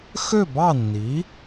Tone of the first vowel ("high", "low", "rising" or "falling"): falling